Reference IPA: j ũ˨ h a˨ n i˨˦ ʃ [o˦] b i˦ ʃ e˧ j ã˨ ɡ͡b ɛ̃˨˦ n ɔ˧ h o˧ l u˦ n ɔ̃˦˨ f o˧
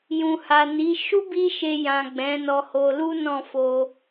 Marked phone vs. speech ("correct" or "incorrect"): incorrect